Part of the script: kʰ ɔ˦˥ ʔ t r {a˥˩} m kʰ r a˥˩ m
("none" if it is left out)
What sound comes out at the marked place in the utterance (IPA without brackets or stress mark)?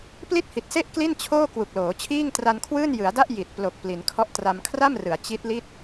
a˧